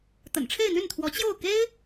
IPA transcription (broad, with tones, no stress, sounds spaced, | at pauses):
t̪ ə̰˨˩ n ʈ͡ʂʰ e˥˧ ɪ̯ n̪ y˥˩ n t̪ʰ w ɔ˧˥ t͡ɕ j o˥˩ ʊ̯ k e˥ ɪ̯